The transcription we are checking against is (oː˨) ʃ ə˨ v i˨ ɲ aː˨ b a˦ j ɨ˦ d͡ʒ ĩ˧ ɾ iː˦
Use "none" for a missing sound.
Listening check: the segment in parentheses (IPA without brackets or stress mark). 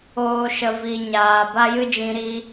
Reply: oː˨